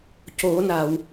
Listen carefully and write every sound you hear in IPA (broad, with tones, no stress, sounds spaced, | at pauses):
c o˨˩˦ n a˨˩˨ w